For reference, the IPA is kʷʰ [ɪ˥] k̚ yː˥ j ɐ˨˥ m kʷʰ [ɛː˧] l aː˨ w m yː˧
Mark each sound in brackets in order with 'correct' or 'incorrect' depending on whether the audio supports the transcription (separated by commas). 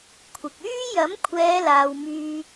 incorrect, incorrect